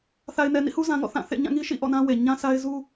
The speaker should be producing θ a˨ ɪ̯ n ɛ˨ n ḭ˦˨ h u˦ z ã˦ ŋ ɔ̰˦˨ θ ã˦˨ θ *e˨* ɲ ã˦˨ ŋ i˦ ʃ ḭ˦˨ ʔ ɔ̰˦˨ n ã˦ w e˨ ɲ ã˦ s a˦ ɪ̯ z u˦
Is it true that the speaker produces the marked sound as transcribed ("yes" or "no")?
no